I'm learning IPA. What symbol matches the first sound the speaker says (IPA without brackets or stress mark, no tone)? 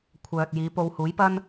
kʷʰ